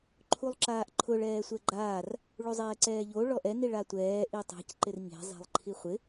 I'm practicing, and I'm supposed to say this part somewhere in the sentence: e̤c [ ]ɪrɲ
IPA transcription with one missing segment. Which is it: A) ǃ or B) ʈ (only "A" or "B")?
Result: A